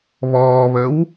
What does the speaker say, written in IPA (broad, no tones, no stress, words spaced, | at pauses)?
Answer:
βɔːβəw